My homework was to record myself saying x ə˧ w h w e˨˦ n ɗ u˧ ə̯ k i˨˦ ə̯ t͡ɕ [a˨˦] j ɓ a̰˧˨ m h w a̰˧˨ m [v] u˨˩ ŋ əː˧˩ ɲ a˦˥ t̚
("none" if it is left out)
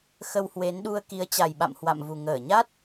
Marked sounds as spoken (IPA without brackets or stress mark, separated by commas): a˨˩, v